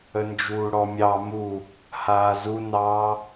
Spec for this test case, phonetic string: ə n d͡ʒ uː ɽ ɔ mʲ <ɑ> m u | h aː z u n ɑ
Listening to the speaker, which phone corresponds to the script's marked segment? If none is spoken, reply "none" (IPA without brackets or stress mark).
ɑ